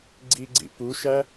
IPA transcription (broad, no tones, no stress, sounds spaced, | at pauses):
ɡ͡ǀ i ɡ͡ǀ ḭ p u ʃ æ